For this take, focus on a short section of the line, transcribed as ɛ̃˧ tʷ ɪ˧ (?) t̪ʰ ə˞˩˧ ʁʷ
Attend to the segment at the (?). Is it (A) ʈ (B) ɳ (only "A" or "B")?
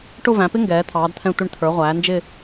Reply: B